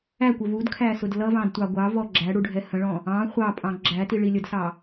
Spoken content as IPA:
æ kʷ ə v u d kʰ æ s ʊ d l ʌ v ɑ̃ d tʷ ɑ ɡʷ ɑ v ɔ ɡ͡ǁ æ ɽ u ɖʱ ɛ h ə̃ ɭ ɔ̃ | ɑ̃ χʷ ɑ pʼ ɑ̃ ɡ͡ǁ æ t i ɭ i lʲ ə d s ɑ

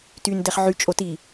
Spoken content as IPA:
t y n d ɛ χ ʕ y t͡ʃʼ o t i

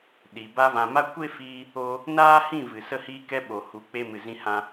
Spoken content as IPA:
ɗ i˨ b a˧ v ã˨ m a˦ kʷ e˦ f iː˧ | o˧ | n aː˦ h ĩ˦˨ v ɨ˨ s ə˦ h iː˦ k ɛ˦ ɓ o˨ h u˨˦ k͡p e˧ m ɨ˨ z ĩ˧ h ã˧

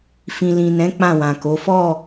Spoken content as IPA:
f ĩ˨ l ĩ˨ n ɛ̃˨˦ k͡p ã˦˨ w ã˨ k o˨˦ f ɔ˦˨

